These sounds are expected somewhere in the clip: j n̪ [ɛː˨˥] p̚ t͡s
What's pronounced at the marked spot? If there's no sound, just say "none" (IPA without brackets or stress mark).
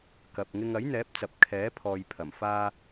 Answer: ɛː˨˥